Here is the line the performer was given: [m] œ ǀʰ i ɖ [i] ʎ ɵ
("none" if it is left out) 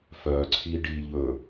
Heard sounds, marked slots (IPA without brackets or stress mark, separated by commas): f, i